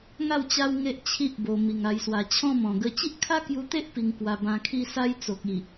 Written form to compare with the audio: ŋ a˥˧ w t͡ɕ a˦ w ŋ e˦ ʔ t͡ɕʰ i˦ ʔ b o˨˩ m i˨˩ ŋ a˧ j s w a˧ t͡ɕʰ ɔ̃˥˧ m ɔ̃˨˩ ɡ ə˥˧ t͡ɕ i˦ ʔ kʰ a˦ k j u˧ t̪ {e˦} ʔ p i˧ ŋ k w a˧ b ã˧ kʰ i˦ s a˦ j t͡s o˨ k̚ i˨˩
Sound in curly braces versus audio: correct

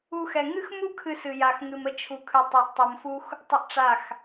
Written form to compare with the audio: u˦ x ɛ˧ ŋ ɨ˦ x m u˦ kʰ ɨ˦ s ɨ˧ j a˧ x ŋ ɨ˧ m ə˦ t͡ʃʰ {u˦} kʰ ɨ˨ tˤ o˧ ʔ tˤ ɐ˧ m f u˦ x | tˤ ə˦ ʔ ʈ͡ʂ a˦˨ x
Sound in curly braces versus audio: incorrect: u˨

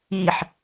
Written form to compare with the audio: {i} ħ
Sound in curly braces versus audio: correct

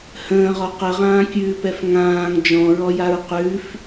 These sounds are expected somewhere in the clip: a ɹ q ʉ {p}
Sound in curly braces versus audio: incorrect: f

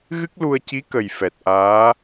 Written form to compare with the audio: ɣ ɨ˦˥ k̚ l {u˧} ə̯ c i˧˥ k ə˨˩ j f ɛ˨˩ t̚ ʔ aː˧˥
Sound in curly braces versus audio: correct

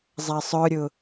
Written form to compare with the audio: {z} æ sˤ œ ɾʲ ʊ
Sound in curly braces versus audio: incorrect: zˤ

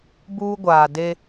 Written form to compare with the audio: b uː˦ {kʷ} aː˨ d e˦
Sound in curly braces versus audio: incorrect: ɡʷ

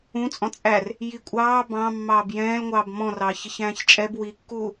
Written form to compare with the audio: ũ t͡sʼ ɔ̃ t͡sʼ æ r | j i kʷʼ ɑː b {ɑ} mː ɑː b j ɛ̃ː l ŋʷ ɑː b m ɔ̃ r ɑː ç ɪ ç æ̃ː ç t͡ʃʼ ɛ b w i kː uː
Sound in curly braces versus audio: incorrect: ɑ̃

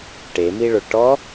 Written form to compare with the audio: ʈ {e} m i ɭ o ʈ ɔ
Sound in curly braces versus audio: correct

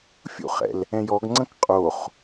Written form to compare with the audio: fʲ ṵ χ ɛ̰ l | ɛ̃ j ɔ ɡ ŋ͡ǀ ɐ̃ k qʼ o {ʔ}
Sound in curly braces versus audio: incorrect: χ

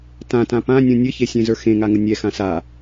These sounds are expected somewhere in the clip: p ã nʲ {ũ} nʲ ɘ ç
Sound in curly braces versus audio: correct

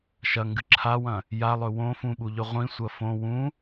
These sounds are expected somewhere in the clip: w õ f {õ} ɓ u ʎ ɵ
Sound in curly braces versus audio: incorrect: ũ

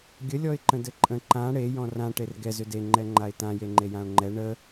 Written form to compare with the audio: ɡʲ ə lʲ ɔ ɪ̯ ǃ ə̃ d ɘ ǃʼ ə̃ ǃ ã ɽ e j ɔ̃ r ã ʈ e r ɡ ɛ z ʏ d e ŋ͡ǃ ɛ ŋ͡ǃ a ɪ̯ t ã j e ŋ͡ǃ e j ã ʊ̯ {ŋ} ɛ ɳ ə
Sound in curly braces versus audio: incorrect: ŋ͡ǃ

